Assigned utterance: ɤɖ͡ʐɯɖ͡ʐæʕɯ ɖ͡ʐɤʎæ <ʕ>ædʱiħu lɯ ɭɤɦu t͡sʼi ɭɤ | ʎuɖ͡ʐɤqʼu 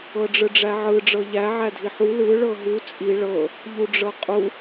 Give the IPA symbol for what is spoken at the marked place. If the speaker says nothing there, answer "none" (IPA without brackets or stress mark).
ʕ